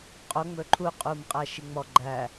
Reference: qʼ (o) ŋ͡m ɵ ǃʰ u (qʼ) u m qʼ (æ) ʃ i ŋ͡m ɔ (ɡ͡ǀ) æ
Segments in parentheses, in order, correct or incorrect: correct, correct, correct, incorrect: ɡ͡ǃ

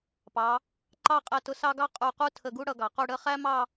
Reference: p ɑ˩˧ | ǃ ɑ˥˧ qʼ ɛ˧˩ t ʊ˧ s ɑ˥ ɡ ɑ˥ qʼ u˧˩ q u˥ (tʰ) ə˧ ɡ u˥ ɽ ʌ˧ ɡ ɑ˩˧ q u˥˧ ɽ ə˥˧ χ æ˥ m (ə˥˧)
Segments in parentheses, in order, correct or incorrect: correct, incorrect: ɑ˥˧

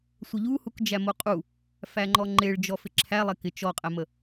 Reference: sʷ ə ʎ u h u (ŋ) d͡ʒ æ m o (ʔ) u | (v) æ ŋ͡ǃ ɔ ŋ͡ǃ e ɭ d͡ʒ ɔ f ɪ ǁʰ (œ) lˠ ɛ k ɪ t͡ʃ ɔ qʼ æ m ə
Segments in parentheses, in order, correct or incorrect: incorrect: k, incorrect: qʼ, incorrect: f, incorrect: æ

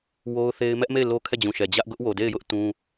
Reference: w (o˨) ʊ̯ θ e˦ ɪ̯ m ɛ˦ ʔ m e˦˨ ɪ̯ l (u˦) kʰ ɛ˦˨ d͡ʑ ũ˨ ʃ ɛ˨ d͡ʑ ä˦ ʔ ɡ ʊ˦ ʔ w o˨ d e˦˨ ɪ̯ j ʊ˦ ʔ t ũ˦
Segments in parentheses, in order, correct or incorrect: incorrect: o˦, incorrect: o˦

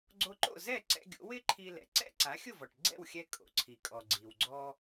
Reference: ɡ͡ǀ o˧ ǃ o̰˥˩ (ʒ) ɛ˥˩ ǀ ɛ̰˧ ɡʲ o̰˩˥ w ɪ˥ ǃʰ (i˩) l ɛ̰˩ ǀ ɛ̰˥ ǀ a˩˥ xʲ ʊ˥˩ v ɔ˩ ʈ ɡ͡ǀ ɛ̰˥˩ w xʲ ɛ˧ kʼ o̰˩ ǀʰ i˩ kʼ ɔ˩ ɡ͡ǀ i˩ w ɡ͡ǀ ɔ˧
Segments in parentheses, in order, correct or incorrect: incorrect: z, incorrect: i˧

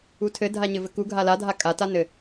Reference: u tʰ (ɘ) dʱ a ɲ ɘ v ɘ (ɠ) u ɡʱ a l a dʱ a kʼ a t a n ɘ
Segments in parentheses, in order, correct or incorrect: correct, incorrect: k

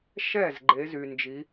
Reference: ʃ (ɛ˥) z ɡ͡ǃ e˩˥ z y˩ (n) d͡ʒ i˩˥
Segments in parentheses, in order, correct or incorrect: incorrect: ɛ˥˩, correct

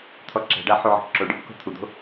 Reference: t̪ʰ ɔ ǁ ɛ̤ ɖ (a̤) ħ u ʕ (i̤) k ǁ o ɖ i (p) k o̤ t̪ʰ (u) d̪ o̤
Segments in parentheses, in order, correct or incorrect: incorrect: a, incorrect: e̤, correct, correct

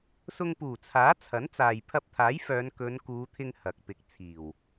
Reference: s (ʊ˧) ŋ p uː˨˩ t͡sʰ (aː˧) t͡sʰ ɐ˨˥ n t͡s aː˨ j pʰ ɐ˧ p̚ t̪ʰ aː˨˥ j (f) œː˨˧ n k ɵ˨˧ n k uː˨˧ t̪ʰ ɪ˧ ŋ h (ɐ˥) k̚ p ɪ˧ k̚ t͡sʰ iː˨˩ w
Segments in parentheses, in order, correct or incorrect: correct, incorrect: aː˨˥, correct, incorrect: ɐ˨

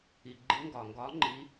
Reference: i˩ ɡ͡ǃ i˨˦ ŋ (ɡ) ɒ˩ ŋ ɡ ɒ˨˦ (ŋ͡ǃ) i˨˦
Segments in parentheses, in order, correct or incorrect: correct, correct

